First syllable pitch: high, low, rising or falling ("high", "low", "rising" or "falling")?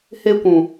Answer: high